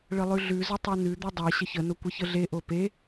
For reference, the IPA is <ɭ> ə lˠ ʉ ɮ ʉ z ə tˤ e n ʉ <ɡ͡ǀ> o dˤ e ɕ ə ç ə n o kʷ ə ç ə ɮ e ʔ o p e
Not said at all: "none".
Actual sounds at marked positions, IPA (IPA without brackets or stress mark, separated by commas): ɭ, d̪